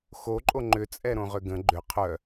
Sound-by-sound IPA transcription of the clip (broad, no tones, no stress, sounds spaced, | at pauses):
x o ǃʼ o ŋ͡ǃ ʏ t͡sʼ ɛ ɾ õ ʁ ʏ ɡ ə̃ ɡ͡ǃ ʏ qʰ œ